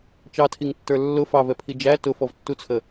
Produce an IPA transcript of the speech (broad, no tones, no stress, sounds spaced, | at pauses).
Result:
t͡ʃ ɑ tʰ i ŋ tː ə˞ lː ʊ f ɑ v ɛ pʰ i d͡ʒ æ t ʊ f ɔ v tː u t͡sʰ ə